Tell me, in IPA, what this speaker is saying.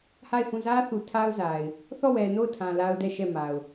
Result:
h a˦˨ ɪ̯ h ũ˦˨ z ä˦ θ u˨ tʰ a˦ ʊ̯ z a˨ ɪ̯ | θ ɔ˦˨ w ɛ˨ n o˦˨ ʊ̯ tʰ ã˨ l a˦ ʊ̯ d ɛ˦˨ ʃ ɛ˦˨ m a˨ ʊ̯

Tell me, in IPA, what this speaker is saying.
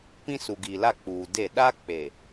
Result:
p ĩ˦ s u˨ ɡ i˨ l a˦˨ k͡p uː˨ d e˦˨ ɗ a˦ k͡p e˨

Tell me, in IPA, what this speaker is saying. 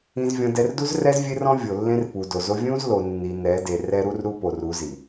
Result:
ĩ˨ z vʲ ɔ̃˨ d ɛ˨ r d u˦ z r ɛ˦ z vʲ e˦ r ɔ̃˦ vʲ o˨ lː ẽ˦ r p u˨ d o˨ z o˦ vʲ ũ˦ z l o˨ nː i˨ n ɛ˨˦ d e˨ r ɛ˦ ɾ u˦ r ɾ u˦ p o˨ r u˨˦ z i˨

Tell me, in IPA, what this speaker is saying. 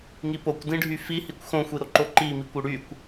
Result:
ŋ i p o kʷ d ĩ ɖʱ y f i h i kʷ x õ xʷ i ɾ o ǃ o ǃ i m i kʷ ʏ ɽ y kʷ

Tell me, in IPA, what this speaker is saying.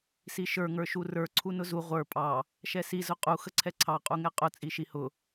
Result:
s i ʃ ə˞ ŋ ə˞ ʃ u r ə˞ ǀʰ u n ʊ z u ʁʷ ə˞ pʼ ɑ | ʃ ɛ s i z ʊ qʼ u x ə ǀʰ ɛ ǀʰ ɑ qʼ u ŋ ɛ qʼ ʊ t͡sʼ i ʃ i h ʊ

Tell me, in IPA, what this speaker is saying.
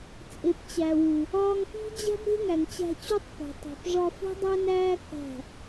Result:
t͡sʼ e˨ p t͡ɕ æ˨ w u˨ | ɒː˧ ŋ p i̤˦ d͡ʑ æ̤˦ b ɾ e̤˦ ŋ æ˨ ŋ t͡ɕ æ̤˧ t͡ɕ u˦ tˤ p e̤˨ tˤ æ̤˨ p ʐ ɒ˧ f ṳ˦ dˤ æ˦ n æː˦ k æ̤˦˨

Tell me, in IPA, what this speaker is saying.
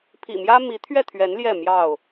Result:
pʰ ḭ˨˩ m j ä˦ m i˨˦ t̪ʰ ɥ ɛ˥˨ t̪ʰ ɥ ɛ˨˦ n l j ɛ˥˨ m j ɑ˥˨ ʊ̯

